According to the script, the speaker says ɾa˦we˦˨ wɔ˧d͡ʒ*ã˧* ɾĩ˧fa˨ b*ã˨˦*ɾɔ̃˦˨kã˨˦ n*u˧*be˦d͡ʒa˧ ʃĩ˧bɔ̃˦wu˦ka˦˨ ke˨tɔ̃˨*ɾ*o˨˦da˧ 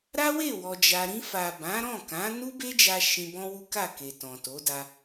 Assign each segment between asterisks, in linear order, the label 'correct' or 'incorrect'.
incorrect: a˧, correct, incorrect: u˦, incorrect: t

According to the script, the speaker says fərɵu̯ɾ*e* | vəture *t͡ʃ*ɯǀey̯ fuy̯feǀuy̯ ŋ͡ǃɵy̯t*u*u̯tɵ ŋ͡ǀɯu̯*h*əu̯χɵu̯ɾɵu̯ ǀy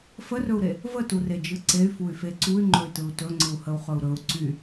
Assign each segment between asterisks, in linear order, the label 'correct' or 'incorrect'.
correct, incorrect: d͡ʒ, incorrect: ɯ, correct

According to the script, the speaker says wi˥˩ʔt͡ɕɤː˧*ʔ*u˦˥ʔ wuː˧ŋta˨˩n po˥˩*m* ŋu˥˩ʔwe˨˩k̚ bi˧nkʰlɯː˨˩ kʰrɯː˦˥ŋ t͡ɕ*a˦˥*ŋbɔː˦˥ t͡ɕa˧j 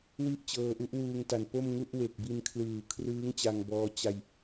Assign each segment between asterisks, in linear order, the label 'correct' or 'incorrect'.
correct, correct, incorrect: a˧

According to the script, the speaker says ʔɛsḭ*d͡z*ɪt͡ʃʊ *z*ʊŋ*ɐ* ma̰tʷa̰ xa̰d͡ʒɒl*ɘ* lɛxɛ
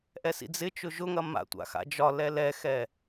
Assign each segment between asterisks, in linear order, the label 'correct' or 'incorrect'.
correct, incorrect: ʒ, correct, incorrect: ɛ

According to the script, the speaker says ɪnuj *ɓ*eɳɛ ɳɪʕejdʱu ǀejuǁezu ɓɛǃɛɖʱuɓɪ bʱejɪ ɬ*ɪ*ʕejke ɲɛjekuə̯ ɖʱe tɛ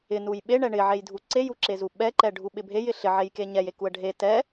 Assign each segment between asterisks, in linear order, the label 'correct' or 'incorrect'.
correct, correct

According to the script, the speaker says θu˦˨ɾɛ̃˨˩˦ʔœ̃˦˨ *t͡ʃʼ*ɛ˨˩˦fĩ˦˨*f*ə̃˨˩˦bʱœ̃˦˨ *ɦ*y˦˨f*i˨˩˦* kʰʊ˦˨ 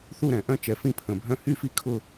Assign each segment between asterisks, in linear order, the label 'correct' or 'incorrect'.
incorrect: t͡ʃ, incorrect: pʰ, incorrect: h, incorrect: i˦˨

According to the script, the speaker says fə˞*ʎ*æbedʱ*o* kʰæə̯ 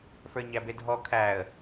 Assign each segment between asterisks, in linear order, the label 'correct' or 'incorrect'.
incorrect: ɲ, incorrect: ɔ

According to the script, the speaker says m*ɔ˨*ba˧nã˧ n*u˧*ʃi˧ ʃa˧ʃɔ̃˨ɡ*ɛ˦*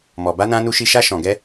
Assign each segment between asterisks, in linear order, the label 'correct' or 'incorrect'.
correct, correct, incorrect: ɛ˧

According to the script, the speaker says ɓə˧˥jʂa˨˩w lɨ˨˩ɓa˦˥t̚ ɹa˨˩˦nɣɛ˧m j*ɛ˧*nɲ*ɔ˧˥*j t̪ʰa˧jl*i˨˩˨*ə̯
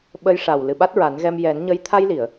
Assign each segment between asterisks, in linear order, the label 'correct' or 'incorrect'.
incorrect: ɛ˨˩˦, incorrect: ə˧˥, correct

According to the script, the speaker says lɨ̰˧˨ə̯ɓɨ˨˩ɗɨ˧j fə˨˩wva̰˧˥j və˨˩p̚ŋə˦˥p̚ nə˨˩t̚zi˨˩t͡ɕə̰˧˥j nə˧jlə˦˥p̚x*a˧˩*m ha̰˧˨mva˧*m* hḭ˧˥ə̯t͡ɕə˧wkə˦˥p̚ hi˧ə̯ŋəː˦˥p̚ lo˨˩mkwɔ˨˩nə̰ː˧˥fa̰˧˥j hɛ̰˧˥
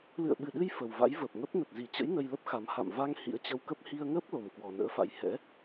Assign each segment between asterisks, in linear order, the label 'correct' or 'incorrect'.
incorrect: a˨˦, incorrect: ŋ

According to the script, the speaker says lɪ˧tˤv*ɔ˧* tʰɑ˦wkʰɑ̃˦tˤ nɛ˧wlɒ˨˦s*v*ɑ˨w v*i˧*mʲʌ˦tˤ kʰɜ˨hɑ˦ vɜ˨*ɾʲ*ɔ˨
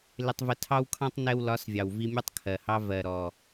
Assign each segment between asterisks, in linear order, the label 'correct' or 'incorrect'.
incorrect: ə˧, incorrect: vʲ, correct, incorrect: ɾ

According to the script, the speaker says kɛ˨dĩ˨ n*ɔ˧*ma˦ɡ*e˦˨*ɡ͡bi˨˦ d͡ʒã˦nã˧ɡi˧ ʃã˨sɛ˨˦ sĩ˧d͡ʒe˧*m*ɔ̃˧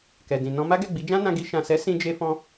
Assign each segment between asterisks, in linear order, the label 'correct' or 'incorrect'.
incorrect: ɔ̃˧, incorrect: ɛ˦˨, incorrect: f

